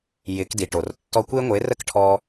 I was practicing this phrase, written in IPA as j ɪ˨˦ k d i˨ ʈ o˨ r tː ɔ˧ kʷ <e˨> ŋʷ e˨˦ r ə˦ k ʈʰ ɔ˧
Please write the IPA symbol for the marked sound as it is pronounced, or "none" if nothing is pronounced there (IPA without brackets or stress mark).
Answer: e˦